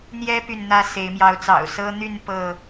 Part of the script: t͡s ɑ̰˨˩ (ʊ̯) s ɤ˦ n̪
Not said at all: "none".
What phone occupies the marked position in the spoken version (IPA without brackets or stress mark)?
ʊ̯